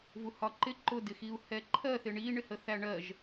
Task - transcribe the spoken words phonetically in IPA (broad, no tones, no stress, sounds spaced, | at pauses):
v u h ɒ ǃ ɪ ǃ ʊ d ɪ x i u̯ h ɛ ǃʰ ɜ θ ɪ ɳ i ɳ ɪ h ə θ æ ɳ ɜ ʒ